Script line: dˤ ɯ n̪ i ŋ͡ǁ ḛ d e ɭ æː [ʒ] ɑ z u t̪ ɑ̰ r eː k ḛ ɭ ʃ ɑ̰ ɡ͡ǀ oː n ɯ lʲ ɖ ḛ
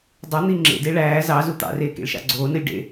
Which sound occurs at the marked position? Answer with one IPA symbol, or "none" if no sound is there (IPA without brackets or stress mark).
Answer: z